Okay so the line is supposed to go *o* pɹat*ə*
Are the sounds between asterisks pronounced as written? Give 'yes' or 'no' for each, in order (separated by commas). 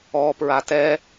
no, no